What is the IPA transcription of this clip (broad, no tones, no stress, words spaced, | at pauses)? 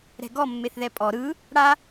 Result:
ɾɛ̤ɡɔ mːeθðɛpʼɔ ɾɯ | ɽa